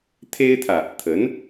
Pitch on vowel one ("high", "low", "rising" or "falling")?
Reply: high